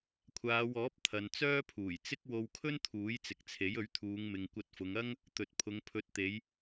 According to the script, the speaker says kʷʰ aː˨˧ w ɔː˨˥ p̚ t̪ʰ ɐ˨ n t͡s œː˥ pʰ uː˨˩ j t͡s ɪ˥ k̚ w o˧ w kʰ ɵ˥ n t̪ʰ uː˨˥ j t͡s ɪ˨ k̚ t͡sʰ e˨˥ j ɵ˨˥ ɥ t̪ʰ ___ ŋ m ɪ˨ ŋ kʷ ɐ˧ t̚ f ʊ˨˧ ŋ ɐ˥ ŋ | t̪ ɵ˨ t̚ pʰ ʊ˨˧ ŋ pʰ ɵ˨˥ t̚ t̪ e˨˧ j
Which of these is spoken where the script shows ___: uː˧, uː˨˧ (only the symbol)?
uː˨˧